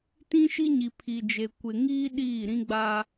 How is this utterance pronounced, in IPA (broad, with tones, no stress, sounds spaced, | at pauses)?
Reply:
t ĩ˦ ʃ i˦ ɲ i˨ pʰ i˨ d͡ʒ e˨ kʷ ɪ˨ ŋ iː˦ ɗ iː˦˨ ɾ ĩ˦ ɡ͡b a˦